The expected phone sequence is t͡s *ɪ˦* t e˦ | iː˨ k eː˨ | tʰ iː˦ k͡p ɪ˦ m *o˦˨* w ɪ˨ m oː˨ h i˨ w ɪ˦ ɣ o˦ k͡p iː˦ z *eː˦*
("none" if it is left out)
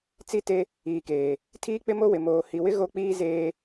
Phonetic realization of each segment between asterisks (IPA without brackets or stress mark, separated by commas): i˦, o˦, eː˦